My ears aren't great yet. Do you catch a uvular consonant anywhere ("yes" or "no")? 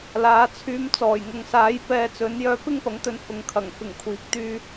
no